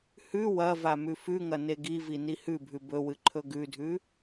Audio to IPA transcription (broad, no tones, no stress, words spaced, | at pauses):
hʉ wɐva mʉfʉŋɐ neɡivi nihʉbʱʉ bɵwɨ ǃʰɵɡʉdʱʉ